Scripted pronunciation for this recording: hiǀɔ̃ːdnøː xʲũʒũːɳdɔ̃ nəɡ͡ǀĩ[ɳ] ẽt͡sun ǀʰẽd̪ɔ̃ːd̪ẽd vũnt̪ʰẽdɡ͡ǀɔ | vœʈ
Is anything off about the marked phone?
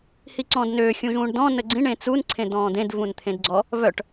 no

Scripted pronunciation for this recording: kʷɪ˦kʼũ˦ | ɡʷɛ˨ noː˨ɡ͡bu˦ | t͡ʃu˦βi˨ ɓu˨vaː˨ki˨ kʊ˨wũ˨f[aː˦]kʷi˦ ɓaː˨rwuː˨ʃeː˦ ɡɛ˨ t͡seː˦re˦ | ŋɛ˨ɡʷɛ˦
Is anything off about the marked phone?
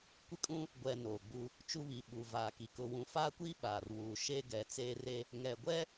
no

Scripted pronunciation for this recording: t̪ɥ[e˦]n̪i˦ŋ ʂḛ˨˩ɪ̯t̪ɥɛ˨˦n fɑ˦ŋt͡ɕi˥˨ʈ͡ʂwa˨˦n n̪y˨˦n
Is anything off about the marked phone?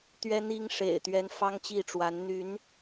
yes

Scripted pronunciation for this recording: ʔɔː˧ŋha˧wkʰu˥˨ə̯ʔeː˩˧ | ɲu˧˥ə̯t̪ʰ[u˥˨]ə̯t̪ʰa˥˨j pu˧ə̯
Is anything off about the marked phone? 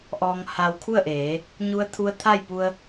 yes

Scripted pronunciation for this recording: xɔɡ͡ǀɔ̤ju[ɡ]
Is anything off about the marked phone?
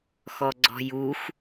yes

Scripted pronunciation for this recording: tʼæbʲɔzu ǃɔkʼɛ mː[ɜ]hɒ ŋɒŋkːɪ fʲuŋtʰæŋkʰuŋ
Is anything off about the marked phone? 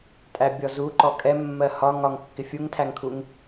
no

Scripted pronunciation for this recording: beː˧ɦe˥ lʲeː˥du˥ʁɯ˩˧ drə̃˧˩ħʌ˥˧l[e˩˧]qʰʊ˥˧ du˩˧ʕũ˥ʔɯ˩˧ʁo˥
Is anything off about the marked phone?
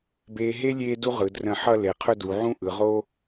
no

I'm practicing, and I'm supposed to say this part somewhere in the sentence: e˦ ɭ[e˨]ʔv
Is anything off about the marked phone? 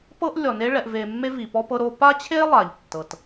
yes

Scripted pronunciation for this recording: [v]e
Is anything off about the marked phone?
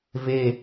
no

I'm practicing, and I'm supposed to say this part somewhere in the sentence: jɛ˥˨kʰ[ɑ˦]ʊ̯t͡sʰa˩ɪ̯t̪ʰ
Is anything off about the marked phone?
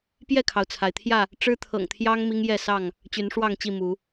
yes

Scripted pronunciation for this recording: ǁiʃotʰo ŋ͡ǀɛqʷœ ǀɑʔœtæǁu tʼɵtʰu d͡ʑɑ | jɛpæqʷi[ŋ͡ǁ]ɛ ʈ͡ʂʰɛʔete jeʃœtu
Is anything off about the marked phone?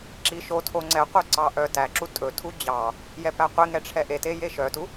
yes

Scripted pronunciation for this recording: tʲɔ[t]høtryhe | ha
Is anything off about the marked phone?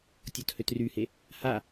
no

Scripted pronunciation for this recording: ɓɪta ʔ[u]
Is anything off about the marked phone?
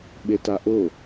yes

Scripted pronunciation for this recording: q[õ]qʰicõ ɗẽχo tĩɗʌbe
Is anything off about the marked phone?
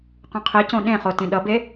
yes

